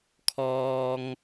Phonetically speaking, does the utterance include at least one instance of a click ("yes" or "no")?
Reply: no